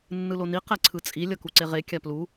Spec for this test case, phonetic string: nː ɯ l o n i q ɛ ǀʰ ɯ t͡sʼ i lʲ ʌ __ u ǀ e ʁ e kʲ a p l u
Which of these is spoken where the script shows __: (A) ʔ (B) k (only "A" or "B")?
B